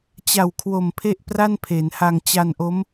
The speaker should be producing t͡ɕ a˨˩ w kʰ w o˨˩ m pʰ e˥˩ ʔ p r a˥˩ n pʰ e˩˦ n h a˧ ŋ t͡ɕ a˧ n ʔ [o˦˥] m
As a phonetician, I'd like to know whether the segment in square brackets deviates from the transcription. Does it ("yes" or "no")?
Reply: no